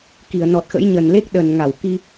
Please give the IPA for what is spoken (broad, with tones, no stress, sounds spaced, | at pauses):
k i˧˩ ə̯ n ɔ˨˩ t̚ x ə̰˧˥ j ɲ ə˨˩ n l e˦˥ k̚ ɗ ə˨˩ n ŋ a˧˩ w k i˧